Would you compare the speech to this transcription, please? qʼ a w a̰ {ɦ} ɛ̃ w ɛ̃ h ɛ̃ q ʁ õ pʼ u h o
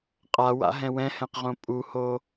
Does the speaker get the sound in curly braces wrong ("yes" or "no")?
no